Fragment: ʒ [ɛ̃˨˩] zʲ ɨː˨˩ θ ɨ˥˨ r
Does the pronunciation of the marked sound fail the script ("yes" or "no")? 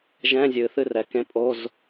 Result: yes